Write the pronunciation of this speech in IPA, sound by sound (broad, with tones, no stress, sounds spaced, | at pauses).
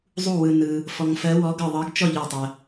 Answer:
zˤ u˥˨ w ɯ˧ n ɯ˧ | f ɔ˧ ŋ f ɜ˧˥ w ɔ˧˥ ɡ ɤ˥˨ ðˤ ɤ˧˥ ɡ t͡ʃ ɔ˥˨ ʎ œ˥˨ tˤ ɜ˧